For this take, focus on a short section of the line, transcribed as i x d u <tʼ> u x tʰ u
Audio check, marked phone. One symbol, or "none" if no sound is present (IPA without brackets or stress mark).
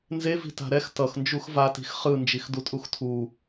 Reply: tʼ